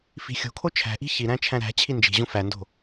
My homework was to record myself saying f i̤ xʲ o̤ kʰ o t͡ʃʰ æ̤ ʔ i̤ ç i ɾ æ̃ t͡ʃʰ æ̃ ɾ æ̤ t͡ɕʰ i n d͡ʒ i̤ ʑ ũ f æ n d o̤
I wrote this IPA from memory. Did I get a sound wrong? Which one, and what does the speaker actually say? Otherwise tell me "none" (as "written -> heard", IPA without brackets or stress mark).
none